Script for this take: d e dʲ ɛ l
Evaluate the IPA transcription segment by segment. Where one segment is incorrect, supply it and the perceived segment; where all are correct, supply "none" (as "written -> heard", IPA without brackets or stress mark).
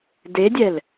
none